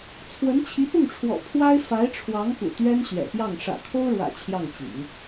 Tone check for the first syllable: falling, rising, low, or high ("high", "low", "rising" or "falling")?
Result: rising